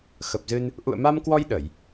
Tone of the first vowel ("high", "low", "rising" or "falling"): low